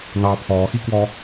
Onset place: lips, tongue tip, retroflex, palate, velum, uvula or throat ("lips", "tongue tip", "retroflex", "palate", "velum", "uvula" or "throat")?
tongue tip